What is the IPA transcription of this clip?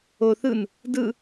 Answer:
oθ ɯn | dɯ

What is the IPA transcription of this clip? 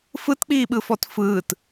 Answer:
fɯtk͡piːɓɯfɔt fɯːt

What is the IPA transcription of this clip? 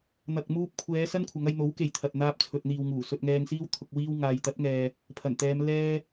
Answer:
n̪ɐ˨k̚muː˧p̚kʷʰɛː˨˧ sɐ˥nkʷʰɐ˨˧ŋɐ˧j n̪o˨˥wke˨j t̪ʰɐ˨t̚ n̪aː˧p̚t͡sʰɵ˨t̚n̪iː˨wŋuː˨˩ sɵ˧t̚ŋɛː˧ŋsiː˥w t̪ʰʊ˨k̚ wiː˧w ŋaː˨jt̪ɐ˨˥t̚ŋɛː˨ | pʰɐ˨˩nt̪ɛː˨˧m lɛː˧

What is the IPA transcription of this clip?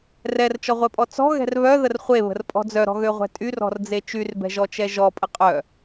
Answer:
rɛrt͡ʃɔʁʷɛpʼɔ t͡sɔ̤ɣɛ̤r βœðər χʷeβə̤rpʼɔ̤ d͡zœɾɔ̤ɣøʁʷɛ̤ tʼyrɔ̤rd͡ze t͡ʃyrbɛ̤ʒɔt͡ʃɛ ʒɔpʼə qʼœ

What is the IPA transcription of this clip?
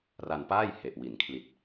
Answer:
ra˧npaː˥˩jhe˨˩ʔ wi˩˦n kʰli˨˩t̚

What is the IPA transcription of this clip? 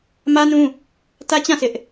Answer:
mä˦nũ˦ | tä˦ t͡ɕã˦˨ sʰɪ˦ʔ

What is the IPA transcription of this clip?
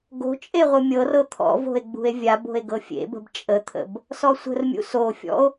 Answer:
ɡo̤t͡ʃʼe ʁʷɯmʲɤrɤ t̪ʰɔ̰vo̤e̯ ɡ͡bṳe̯vʲabo̤e̯ ɡɤfʲḛbə̤b t͡ʃʼət̪ʰə̰b | sɔsʷə̤rmʲṵ sofʲɔ̰o̯

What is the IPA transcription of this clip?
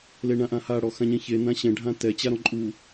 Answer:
leɳãʔãha ɽɔxãɲɛ̃çe nãɕɛ̃ ɖʱãtɛ t͡ɕaɾɔ̃ǃʼu

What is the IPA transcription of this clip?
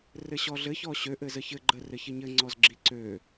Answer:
rɘɕɔɮɘç ɔɕøʔ ɘzəçɘ ɡ͡ǃə rɘçɘɲɘ ŋ͡ǀɔzɡ͡ǁi ǀø

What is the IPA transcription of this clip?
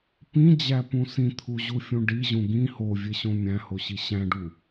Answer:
pĩd͡ʑæpũ sĩt̪ʰuʑufʲũ ɖiʑũ ɡĩ hovʲeɕõ mʲæ̃hoɕi ɕæ̃ɖu

